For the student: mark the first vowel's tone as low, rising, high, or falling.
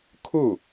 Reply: falling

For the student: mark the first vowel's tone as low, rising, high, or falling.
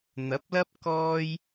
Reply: rising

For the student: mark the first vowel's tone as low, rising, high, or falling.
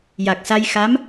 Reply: low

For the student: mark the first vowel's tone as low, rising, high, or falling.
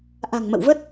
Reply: low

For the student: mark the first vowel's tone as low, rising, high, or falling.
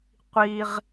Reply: high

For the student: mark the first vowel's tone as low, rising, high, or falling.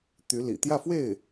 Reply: rising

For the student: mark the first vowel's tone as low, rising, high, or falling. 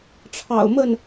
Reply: low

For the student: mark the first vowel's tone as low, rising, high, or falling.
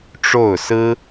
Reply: falling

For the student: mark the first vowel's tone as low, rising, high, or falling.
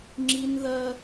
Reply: high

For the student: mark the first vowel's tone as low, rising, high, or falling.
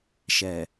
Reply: low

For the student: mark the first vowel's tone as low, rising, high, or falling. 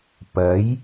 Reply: rising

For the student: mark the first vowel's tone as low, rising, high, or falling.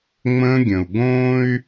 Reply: high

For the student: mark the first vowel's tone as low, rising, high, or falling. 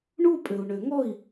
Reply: falling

